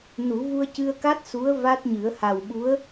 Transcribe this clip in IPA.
nu˨˩˦ vu˧ə̯cɨ˧ə̯ka˦˥t̚ su˧˥ə̯ va˦˥t̚ɲɨ˨˩˦ə̯ ha˨˩wɓu˧˥ə̯

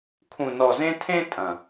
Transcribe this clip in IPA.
kʰũ˨nɔ˨zẽ˧ tʰẽ˦tʼɐ̃˨

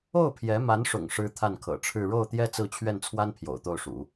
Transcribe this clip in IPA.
o˥˩ʊ̯pʰjɛ˧˥ma˧˥nʂʊ̰˨˩ŋ ʂɻ̩˥t̪ʰa˥˩nkʰɤ̰˨˩ʈ͡ʂʰɻ̩˥˧ ɻo˥˩ʊ̯t̪jɛ˥ t͡sɹ̩˥˧t͡ɕʰɥɛ˥˩nt͡sʰwa˥n pʰjo̰˨˩ʊ̯t̪o˥˩ʊ̯ʂṵ˨˩˦

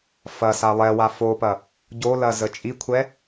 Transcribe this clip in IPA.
fɐ salˠɛwa fopɐ | ɟolɐ zət͡ʃʼikʷʰɛ

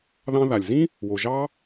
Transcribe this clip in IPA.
ðɑ̃˧ða˨lʲzĩ˦ | wo˨ʒɑ˦

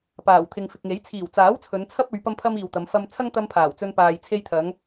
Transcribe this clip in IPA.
paː˨˩wt̪ʰɪ˨ŋfɪ˨k̚ŋe˨˥j t͡sʰiː˨˩wt͡saː˨˥w t͡sʰɵ˨˧nt͡sʰɐ˥p̚ɵ˨˧ɥ pɐ˥mpʰɐ˥miː˨wt̪ɐ˨˧m fɐ˧m t͡sʰɐ˥ŋt̪ɐ˧m pʰaː˨˩wt͡sɵ˧n paː˨j t͡sʰe˧jt̪ʰɐ˨˧ŋ

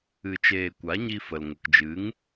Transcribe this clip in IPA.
ɨ˧t͡ʃeː˧ kʷa˨˦ɲi˧fə˨l ŋə˨kd͡ʒɨ˨˦ŋ

